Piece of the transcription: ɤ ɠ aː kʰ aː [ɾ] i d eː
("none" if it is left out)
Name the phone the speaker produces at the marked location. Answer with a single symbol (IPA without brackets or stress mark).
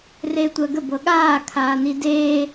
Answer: n